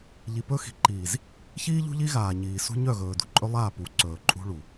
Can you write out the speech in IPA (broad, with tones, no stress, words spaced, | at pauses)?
ʎi˨pɵ˦xi̤˨ ǃiː˨z | çiː˦ʎṳ˦ʎi˦ ɣaː˨ɲiː˨ sṳ˦ɲœ˦˨ ɣɵː˨ dṳ˨ǃʼɵ˦lˠaː˦˨ pu˨ǀɵː˨ ǃʼṳ˦ɭu˨